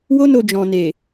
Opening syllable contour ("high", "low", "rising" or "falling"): high